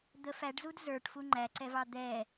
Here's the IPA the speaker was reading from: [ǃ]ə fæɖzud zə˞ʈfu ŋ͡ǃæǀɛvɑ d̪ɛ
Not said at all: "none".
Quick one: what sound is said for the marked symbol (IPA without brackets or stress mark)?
d̪